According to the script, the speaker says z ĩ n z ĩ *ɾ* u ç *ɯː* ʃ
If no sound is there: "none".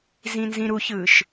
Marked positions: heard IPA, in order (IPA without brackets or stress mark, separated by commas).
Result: ɾ, ɯː